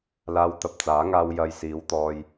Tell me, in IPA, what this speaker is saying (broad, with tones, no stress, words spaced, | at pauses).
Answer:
laː˧wt̪ɐ˧p̚t͡saː˨˥ŋaː˧w jɐ˨j siː˨˥wt̪ɔː˧j